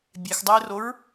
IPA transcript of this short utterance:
bʲ ɛ x dˤ ɪː r o ɹ

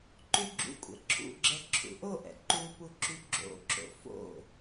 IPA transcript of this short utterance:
ǃ y ɡ͡ǁ ṵ kʷʼ ɛ̰ ǁʰ ṵ ɡ͡ǁ ɛ ǁʰ ṵ ʔ o ʔ ɛ̰ ǃ u p u ǁ y ɡ͡ǁ o̰ ǁ o̰ f o̰

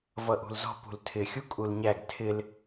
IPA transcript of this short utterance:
v ʌ ʔ ṳ l z ɔ̤ p ṳ l tʰ ɪ xʲ u kʼ u l ɲ æ ɡ tʰ ɪ l

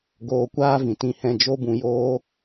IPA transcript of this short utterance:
ɡ oː˧ kʷ aː˦ v ĩ˨ t ĩ˧ h ɛ̃˧ d͡ʒ o˦ b ũ˧ j oː˦

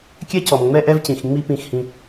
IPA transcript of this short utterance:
kʲ ɛ˦ c ɔ˨ m ŋ͡m ɛ˦ ʔ ɛ˦ v c ĩ˨ x ŋ͡m i˦ p ĩ˦˨ x h ĩ˦

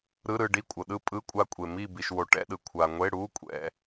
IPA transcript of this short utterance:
ɾ ɯ˧˥˧ ɾ ɯ˦˨ ɖ i˦˨ kʷʼ ɤ˩ ɗ ɯ˦˨ pʼ ɯ˧˥˧ kʷʼ a˦˨ kʷʼ e˩ m i˦˨ b i˩ ʃ w o˩ ʈ ɛ̰˧˥˧ ɗ ɯ˩ kʷʰ a˩ ŋʷ e˧˥˧ ɽ u˧˥˧ kʷʼ ɛ̰˩

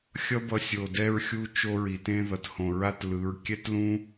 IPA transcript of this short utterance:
xʲ ʌ˦ b ʌ˧ sʲ o˨ d ɛ˦ ɹ xʲ u˦ t͡ʃ o˦ ɹ i˨ t ẽ˦ ð ʌ˨ t h õ˨ ɹ a˦ t l ɯ˨˦ ɹ kʲ ɛ˦ t l ũ˦

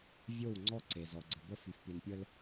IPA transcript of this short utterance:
vʲ o˦˨ w ŋ͡ǀ ɔ˦ ǀ e˨ z ɔ˨ ɡ͡ǀ ə˨ b ə˦˨ f y˨ f p i˨ n pʲ ə˦ l

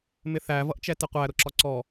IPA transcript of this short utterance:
m ɪ θ æ v ʌ ʔ t͡ʃ ɛ t ɪ qʷ æ ɾ ʊ ǁ ɒ ǀ ɔ

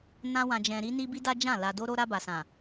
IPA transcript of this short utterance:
n ã˧ w ã˨ d͡ʒ ɛ̃˨ ɾ i˧ n i˧ b i˦ d a˦ d͡ʒ ã˦˨ l a˨ d o˧ ɾ o˧ ɾ a˧ b a˨ s ã˨

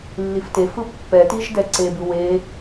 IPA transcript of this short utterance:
lː i f t e f ɯ pː ɛ t i ʒ d ɛ ǀ e b ɯ w e

